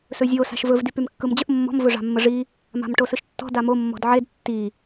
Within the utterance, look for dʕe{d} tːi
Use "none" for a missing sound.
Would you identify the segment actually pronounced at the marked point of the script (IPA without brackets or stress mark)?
d